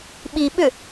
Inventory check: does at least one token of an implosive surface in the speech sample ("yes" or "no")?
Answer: yes